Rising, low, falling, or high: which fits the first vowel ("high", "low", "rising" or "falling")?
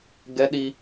high